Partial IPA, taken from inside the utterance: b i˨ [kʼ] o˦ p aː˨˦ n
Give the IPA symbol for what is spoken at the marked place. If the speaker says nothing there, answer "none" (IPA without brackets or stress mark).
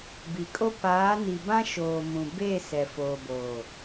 kʼ